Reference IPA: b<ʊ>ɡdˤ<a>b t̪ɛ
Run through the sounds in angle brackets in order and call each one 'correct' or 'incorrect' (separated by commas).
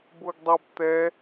correct, correct